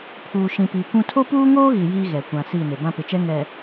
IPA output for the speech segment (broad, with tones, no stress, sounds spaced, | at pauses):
pʰ uː˨ ʃ ĩ˨ p iː˨ kʷ ũ˦ tʰ o˦ p uː˦ ŋ oː˦ ɣ i˨ j iː˦ ɣ ɛ˨ kʷ ã˨ s iː˦˨ n e˨ b ã˦ p ɪ˨ t͡ʃ ɛ˦ ŋ ɛ˨